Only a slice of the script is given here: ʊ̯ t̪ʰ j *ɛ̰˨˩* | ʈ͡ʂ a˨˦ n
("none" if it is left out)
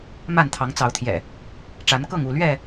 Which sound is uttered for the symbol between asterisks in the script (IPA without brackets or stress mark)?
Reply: ɛ̰˨˩